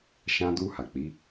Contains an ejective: no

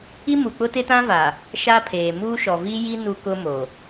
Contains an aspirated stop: yes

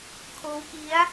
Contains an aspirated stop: yes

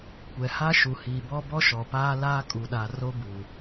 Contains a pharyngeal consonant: no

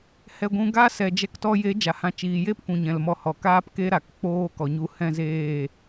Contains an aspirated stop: no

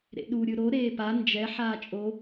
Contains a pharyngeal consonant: yes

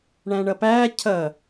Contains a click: no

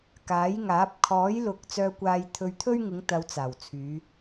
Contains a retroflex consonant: no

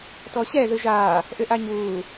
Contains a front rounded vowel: yes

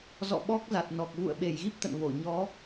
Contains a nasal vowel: no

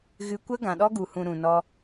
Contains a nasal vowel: yes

